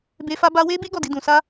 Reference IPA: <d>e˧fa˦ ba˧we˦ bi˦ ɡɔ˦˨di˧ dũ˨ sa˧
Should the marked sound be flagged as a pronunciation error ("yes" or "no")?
yes